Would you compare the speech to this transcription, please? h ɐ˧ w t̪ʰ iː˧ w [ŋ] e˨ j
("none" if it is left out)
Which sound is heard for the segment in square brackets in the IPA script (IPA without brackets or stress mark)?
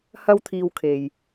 kʰ